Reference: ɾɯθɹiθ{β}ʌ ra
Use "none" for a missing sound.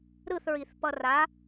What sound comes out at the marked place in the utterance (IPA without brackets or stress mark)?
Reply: p